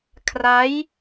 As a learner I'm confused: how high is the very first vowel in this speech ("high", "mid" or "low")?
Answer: low